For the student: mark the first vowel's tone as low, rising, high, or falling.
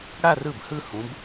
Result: falling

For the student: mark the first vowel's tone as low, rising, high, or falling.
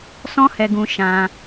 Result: high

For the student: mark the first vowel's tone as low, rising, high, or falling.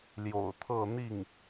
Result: low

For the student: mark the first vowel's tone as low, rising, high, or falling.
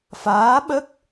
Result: rising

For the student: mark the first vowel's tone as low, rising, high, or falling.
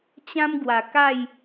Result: high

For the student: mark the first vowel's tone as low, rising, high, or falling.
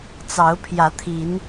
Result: rising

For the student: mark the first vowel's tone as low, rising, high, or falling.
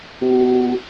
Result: low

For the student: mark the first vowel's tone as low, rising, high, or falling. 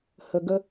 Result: low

